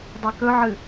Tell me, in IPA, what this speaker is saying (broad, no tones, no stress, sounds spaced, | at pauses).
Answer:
dˤ e k ɵ ʕ ɨ